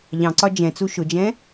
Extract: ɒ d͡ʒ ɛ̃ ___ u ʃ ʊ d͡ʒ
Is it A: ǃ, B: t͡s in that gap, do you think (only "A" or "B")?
B